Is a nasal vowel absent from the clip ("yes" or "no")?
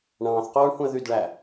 no